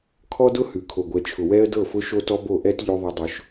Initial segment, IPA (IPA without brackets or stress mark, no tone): kʰ